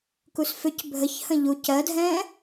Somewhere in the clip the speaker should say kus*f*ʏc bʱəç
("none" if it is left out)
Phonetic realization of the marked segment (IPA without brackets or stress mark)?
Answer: f